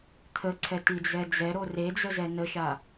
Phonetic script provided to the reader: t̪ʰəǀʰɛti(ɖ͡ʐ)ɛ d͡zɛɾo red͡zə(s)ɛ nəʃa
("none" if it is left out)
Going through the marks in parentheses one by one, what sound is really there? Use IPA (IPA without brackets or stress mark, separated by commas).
d͡z, z